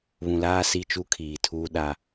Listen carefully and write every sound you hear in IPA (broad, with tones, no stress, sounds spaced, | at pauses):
β ũ˨ l aː˦ s i˦ t͡ʃ u˦ kʰ iː˨ tʰ uː˦ ɗ a˦